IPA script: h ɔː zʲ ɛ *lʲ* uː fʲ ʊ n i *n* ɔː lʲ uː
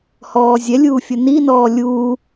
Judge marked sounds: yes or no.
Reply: yes, yes

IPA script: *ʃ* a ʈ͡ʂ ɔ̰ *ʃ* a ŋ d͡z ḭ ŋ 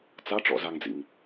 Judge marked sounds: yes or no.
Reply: no, no

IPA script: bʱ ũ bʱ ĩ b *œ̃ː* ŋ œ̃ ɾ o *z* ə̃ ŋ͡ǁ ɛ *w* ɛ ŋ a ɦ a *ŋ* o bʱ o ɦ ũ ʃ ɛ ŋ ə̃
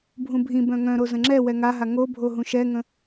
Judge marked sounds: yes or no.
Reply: no, yes, yes, yes

